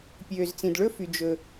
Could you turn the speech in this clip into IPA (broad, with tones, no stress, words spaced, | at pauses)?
pʲøː˩zt͡sĩ˩dɭɵ˥fy˩ d͡ʒɵ˩